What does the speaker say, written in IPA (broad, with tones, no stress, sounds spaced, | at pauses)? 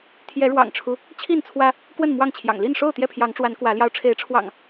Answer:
t̪ʰ j ɛ˨˦ ɻ w ɑ̰˨˩ ŋ ʈ͡ʂʰ u˦ | t͡ɕʰ i˥˨ n t͡sʰ w ä˦ | k w ə˥˨ n m w ɑ˥˨ ŋ t͡ɕʰ j ɑ̰˨˩ ŋ l i˥˨ n ʂ o˥˨ ʊ̯ t̪ j ɛ˥˨ pʰ j ɑ˨˦ ŋ ʈ͡ʂ w a˨˦ n k w ä˨˦ l j ɑ˧ ʊ̯ ʈ͡ʂʰ e˨˦ ɪ̯ ʈ͡ʂʰ w ɑ̰˨˩ ŋ